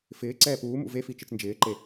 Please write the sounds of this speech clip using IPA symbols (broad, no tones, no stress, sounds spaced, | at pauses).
f ɪː ǀ ɛː p uː m ṵ v e f i t͡ʃ ɨ t͡s n d͡ʒ ɪː ǃ e